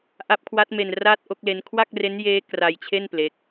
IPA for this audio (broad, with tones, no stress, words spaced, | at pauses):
ʔa˦˥p̚kʰwa˦˥t̚me˧n ra˥˩t̚ʔo˥˩k̚le˦˥n kʰwa˥˩k̚re˦˥njeː˦˥ kra˧jt͡ɕʰe˥˩n ple˦˥k̚